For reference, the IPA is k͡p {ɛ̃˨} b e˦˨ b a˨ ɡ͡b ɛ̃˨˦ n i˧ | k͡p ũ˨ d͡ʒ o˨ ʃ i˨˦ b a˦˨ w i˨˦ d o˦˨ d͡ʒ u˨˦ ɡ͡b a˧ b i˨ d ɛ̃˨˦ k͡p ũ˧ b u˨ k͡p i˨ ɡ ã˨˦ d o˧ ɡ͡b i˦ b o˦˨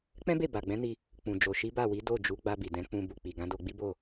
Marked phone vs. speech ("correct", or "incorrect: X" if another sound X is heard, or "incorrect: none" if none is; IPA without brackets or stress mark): incorrect: ɛ̃˦